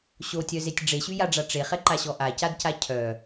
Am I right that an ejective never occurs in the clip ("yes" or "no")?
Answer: yes